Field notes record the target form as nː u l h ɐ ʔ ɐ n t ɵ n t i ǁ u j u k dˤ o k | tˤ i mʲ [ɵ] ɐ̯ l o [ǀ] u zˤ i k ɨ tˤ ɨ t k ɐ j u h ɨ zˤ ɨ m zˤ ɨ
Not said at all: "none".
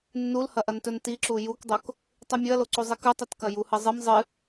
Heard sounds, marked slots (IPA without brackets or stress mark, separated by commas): ɵ, ǀ